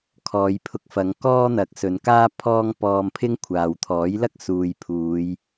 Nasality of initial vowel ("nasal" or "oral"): oral